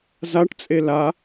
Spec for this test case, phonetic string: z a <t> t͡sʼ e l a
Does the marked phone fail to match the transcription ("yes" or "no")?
yes